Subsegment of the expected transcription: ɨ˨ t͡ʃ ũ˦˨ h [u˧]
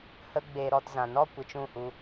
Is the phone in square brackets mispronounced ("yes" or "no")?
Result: no